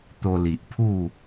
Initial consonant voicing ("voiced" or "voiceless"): voiceless